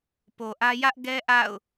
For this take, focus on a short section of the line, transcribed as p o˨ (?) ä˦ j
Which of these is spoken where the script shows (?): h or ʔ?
ʔ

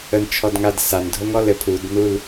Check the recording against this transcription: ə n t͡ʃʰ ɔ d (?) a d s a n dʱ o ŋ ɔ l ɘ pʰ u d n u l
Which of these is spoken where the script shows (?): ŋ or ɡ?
ŋ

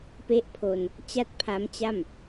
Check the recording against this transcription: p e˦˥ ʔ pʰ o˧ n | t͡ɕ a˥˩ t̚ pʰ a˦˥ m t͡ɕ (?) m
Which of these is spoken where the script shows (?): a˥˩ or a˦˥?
a˥˩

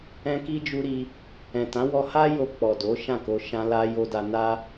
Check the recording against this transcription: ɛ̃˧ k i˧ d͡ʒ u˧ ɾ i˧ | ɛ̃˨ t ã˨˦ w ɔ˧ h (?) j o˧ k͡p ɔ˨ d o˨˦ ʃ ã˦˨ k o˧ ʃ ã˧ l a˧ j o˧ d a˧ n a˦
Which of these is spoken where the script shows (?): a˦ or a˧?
a˦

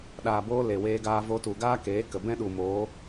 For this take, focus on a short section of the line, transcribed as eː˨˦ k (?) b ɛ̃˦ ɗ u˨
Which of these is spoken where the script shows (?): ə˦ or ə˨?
ə˨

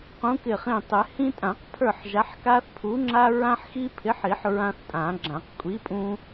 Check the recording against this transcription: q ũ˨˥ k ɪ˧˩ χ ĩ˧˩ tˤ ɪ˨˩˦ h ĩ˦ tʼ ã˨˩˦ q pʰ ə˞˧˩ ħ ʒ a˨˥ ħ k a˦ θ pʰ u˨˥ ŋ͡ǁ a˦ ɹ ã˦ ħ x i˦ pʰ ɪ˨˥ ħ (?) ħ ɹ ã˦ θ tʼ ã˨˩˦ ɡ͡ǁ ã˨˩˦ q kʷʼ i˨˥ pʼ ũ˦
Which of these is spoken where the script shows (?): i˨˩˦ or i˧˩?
i˨˩˦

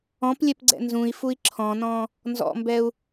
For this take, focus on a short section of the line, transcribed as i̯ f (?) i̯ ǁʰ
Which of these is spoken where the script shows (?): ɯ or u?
u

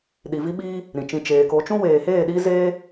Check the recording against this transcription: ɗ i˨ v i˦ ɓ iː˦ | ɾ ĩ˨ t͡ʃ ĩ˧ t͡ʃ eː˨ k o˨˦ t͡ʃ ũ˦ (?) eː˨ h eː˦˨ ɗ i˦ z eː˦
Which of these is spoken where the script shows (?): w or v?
w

